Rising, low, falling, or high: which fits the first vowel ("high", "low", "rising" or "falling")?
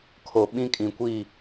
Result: low